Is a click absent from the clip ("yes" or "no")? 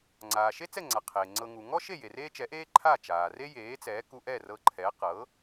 no